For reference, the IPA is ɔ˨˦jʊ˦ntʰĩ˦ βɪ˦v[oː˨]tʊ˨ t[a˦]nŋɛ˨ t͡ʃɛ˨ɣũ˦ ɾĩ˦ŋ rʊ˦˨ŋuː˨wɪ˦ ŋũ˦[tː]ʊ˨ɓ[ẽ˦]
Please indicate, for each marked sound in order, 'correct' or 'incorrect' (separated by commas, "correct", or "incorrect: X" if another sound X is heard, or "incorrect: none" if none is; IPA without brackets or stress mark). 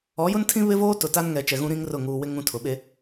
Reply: incorrect: oː˦, correct, incorrect: tʰ, incorrect: e˦